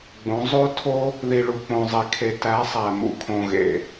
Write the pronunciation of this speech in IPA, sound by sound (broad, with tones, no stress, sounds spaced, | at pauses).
ɡ͡b õ˨˦ zˤ o˦ tʰ o˦ | ð i˨ ɭ u˨ k͡p õ˨ zˤ i˨ kʰ e˨ t æ˨˦ sˤ æ˨ m ṵ˨ kʰ õ˨ ɣ ḛ˨